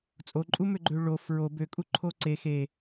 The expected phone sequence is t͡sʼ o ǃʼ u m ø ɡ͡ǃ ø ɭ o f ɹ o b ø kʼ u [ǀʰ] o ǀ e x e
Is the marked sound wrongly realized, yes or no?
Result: yes